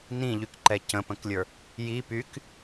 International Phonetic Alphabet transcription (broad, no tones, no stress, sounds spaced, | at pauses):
n ĩ ʎ y k ǃ ɛ c ə̃ p ə̃ k lʲ ə˞ | j i p y k